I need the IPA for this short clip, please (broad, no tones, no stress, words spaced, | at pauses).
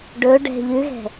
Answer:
ɖɵ ɖɛ̤ ʎʉɣɛ̤